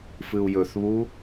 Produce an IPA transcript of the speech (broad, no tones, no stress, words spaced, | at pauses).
fɨu̯jɵθβu